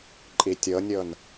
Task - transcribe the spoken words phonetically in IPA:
ǃʼ i tʲ ɤ nʲ ɤ n

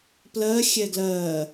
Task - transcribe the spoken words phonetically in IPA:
p l ɜ xʲ ɛ ɡ l ɜ

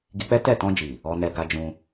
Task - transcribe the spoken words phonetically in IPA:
ɡ i˧ k͡p ɛ˦ t ɛ˦˨ t ɔ̃˧ d͡ʒ i˨ | ɔ˧ n ɛ˧ ɡ a˧ d͡ʒ ũ˧

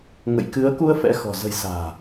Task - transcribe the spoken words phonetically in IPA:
ŋ ə̰˧˨ j k ɨ˨˦ ə̯ k u˧ ə̯ f ɛ̰˧˥ x ɔ̤˨˩ z ə̤˨˩ j s a̤ː˨˩

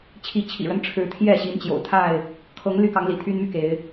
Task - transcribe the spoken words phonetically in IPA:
t͡ɕʰ i˨˦ t͡ɕʰ ḭ˨˩ ɻ ə˦ n ʈ͡ʂʰ ɻ̩˨˦ t̪ʰ j ɛ˥˨ ɕ i˨˦ n t͡ɕ j o̰˨˩ ʊ̯ t̪ʰ a˥˨ ɪ̯ | kʰ ɤ˨˦ ŋ l y˦ k ɑ˨˦ ŋ l ḭ˨˩ t̪ʰ y˦ n m y˥˨ k e˨˦ ɪ̯

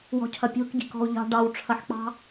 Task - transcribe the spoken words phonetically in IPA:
w ɔ̤ cʰ ɐ pʲ o̤ k ɟ i̤ k ɔ̤ u̯ ʎ ɑ̤ ɖ ɑ w ʈ͡ʂʰ ɐ ħ k͡p ɑ̤

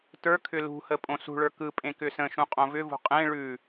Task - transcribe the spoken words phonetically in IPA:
t ə˞ kʰ ʏ l ṳ h ə pʼ õ s ṳ ɭ ə˞ k ɯ pʼ ẽ k ʏ s ə̃ ʃ ũ qʼ õ v ʏ v ṳ qʼ ẽ ɭ ʉ

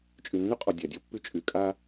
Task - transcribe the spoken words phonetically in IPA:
t͡ʃʼ y˨ nː y˦ qʼ ɔ˨ dʲ a˨ dʲ ɔ˦ pː y˦ t͡ʃʼ y˨ kʼ a˦

